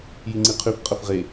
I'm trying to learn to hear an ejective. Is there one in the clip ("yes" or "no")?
yes